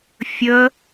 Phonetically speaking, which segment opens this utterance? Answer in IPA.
fʲ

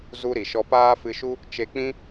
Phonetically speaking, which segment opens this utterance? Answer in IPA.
z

